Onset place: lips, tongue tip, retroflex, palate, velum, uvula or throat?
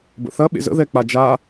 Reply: lips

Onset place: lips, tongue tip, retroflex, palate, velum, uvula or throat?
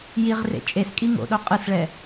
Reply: palate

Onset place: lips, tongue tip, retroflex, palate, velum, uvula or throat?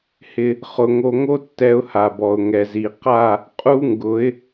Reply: throat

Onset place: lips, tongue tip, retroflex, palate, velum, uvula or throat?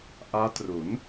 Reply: throat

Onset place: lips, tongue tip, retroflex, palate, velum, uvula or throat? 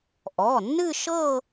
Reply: throat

